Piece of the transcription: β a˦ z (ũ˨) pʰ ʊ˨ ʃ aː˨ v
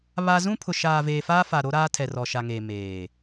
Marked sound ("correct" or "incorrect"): incorrect